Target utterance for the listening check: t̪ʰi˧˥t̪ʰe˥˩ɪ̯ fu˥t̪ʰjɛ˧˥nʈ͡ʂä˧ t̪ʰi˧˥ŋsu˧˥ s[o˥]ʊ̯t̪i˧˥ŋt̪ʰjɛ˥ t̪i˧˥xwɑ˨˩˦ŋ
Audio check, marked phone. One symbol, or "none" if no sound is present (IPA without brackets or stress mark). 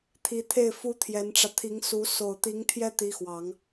o˨˩